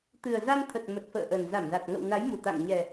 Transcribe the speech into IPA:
t̪ɨ˨˩ə̯za˧nt̪ʰə˨˩t̚ mə˨˩t̚fə̰ː˧˨ʔə˨˩nza˧˩m za˨˩t̚ŋə̰˧˨w na˨˦jmu˨˩t̪a̰˧˨ŋ ɲɛ˨˩

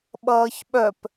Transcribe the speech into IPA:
ɓʌːçɓœp

